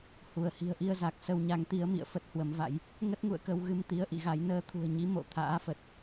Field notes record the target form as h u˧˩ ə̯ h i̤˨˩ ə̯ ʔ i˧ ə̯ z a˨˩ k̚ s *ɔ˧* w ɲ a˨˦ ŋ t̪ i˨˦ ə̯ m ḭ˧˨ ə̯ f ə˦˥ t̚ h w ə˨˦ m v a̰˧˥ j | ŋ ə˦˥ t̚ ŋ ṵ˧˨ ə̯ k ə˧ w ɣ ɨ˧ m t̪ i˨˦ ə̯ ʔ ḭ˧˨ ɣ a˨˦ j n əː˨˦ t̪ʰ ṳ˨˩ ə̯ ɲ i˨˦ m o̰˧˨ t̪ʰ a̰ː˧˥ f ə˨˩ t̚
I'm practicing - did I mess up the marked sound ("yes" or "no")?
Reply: yes